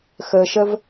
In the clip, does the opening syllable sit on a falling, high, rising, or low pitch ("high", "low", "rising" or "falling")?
low